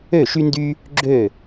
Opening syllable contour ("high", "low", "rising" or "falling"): falling